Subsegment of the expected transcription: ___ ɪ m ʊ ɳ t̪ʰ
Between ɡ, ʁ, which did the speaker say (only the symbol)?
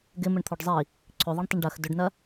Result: ɡ